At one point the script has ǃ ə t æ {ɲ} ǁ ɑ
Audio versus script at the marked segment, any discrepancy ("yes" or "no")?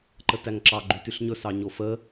yes